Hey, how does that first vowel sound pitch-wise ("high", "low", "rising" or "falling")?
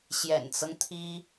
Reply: low